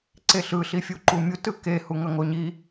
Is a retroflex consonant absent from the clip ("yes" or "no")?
yes